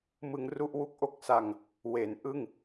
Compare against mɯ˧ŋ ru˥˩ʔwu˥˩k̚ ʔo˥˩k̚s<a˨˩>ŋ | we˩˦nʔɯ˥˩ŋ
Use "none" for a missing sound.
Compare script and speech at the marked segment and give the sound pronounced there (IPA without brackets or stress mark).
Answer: a˧